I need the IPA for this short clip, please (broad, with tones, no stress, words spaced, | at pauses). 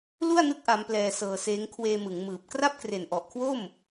lu˥˩a̯nɯ˦˥k̚ ʔa˦˥mplɛː˧sɤː˧seː˦˥ŋ kʰweː˧mɯ˩˦ŋmɯː˨˩p̚ kra˥˩p̚kre˨˩nʔɔ˨˩ʔkʰwo˥˩m